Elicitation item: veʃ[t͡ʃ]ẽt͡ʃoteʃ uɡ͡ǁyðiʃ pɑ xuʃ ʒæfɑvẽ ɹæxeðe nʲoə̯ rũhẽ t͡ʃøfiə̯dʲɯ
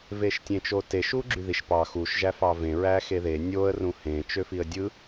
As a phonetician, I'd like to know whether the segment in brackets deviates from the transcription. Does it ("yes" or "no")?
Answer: yes